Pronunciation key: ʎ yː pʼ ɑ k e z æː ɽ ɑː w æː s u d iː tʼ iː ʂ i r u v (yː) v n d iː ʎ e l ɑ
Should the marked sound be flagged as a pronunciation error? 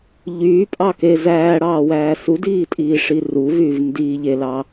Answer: no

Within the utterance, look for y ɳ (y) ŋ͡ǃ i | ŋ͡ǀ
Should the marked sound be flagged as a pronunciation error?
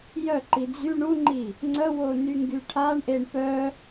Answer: yes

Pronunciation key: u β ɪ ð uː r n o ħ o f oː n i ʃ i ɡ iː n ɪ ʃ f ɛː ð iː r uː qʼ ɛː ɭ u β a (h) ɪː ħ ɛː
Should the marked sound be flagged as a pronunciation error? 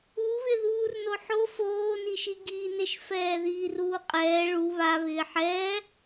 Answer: yes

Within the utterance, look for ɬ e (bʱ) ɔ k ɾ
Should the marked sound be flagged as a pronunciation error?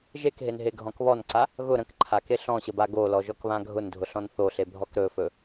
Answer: no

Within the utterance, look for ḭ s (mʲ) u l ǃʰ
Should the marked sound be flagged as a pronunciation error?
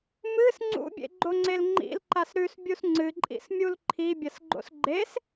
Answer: no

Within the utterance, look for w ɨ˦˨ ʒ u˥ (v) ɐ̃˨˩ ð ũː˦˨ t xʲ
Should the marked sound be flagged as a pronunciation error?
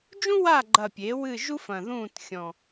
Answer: yes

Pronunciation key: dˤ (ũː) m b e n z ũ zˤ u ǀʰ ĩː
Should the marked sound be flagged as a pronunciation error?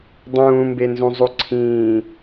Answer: no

